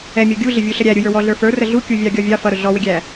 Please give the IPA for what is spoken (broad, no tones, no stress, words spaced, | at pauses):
ɛ mʲɔɡʲuɮɪ vʲuɬəɾʲæ ɾʲujə˞wɔɮə˞ fə˞rə ɮukʲuvʲɑ ɡʲɔvʲɑ fʌɾʊ ɮɔwɪɡʲæ